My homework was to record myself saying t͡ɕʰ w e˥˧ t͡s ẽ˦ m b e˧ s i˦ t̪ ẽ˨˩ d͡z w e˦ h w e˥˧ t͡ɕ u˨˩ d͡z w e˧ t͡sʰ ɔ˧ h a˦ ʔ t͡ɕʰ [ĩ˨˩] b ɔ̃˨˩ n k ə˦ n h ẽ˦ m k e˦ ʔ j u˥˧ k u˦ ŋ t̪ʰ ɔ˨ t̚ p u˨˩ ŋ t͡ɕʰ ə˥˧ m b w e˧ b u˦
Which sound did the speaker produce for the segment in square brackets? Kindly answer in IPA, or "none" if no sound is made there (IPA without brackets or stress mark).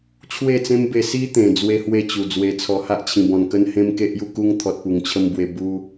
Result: ĩ˨˩